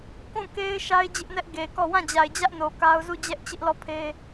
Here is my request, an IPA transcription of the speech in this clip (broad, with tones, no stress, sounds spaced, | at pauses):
k ũ˦˨ k e˦ ɪ̯ ʃ a˦ ɪ̯ d͡ʑ ɪ˦ ʔ n ɛ˦ ʔ ɡ e˨ k ɔ˦˨ w ã˦˨ d͡ʑ a˨ ɪ̯ d͡ʑ ä˦ ʔ n o˨ k a˦ ʊ̯ z u˦˨ d͡ʑ ɛ˦ ʔ t͡ɕ ɪ˦ ʔ l ɔ˦˨ pʰ e˦